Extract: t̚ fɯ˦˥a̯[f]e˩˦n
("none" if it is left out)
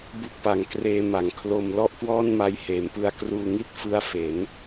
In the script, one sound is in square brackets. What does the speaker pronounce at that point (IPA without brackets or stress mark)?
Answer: f